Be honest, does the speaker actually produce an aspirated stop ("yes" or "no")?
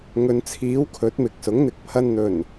yes